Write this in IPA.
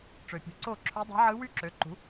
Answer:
ʈ͡ʂø˩pʲṳ˩˥ǀo˥˩ ǁʰø˧˥dˤe̤˧˥ ʕɯ˧˥ wy˥˧ǁø˩˥ǃṳ˩˥

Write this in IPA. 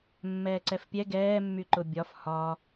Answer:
mːɛːǀɛfpʲɛ ɡɛː mːyǃʊbʲɒf hɒ

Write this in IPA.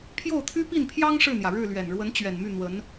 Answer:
pʰjo˥˩ʊ̯t̪ʰy˥pi˥˩npʰjɑ˥ŋ ʂɻ̩˥˩n̪jä˩ɻɻ̩˥˩ lɥɛ˨˩nɻwə˧˥n t͡ɕɥɛ˨˩nmy˥˩ n̪wə˧˥n

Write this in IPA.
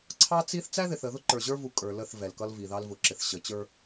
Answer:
ǀʰɑ˦t͡si˦θ t͡sæ˦ðɪ˨θə˨ðʊ˦ ǃə˞˨ʑə˞˦vu˨ kʼə˞˨ lə˦˨θ vɛ˨lkʌ˦lvi˨ ðɑ˦lvʊ˨ǁɪ˨θ ɕə˨t͡ɕə˞˦

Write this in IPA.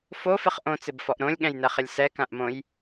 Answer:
fofɪχ ʔõt͡sɪbfɔʔ ɾõlʲɠɛ̃jnɛχɪlʲ sɛkãʔmõj

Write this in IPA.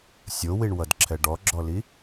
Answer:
sʲowiɳwʌdǁʰɛ ɖɔɡ͡ǁɔli

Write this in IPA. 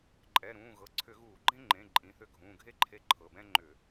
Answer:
ǃʼɛ˩˧˩ɾũː˩˧˩ ɣɤ˩˧˩ǀʰʏ˧˩˧ɣuː˧˩˧ ɡ͡ǃẽ˥ ŋ͡ǃẽ˩˧˩ ǃʼĩ˩˧˩θʏ˦˨ ɡʱũː˩˧˩ɡʱe˥ǃʰe˧˥ ǃʰɤ˩˧˩bɛ̃˥ ŋ͡ǃʏ˧˩˧

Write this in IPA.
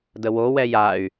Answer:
dəwo wɛjay̯

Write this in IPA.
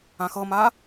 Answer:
ãxɤma

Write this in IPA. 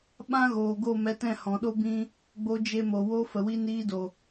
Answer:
ɓã˦ ɣoː˨ɡo˦˨ mɛ˧tɛ̃˦˨ hɔ̃˨ɗo˦ bĩ˦ | ɡ͡bo˧d͡ʒe˧mo˨wo˦ fə˨wi˧niː˧do˨

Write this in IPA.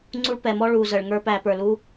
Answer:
ŋ͡ǀu˧ɭpɛ˨mɔ˧ ɭuː˨ zəː˨ɭŋə˞˦pæː˧pə˞˨ lu˦

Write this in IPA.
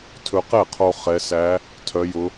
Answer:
tʰɵ˧qɛ˥˩qʰo˧ χɛ˧˥ sæ˧˥ | tʰœ˧˥jʊ˧˥

